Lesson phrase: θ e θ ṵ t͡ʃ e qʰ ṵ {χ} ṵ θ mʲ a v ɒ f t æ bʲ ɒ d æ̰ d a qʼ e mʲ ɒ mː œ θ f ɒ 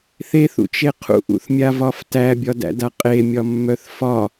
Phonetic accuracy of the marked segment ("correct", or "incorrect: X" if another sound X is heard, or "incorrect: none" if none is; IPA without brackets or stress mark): incorrect: ʔ